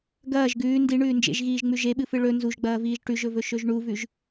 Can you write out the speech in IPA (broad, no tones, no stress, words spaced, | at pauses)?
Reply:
ɡɐːʒ ɡʉː ndi ɳʉːnd͡ʒḛʒɣiːʒŋ͡mʉ ʒeɓɨfɨ ɭɵ nzuʒɡ͡bɐːviːʒ ʈʉʒɵvɵ ʃɵʒɳuvʉʒ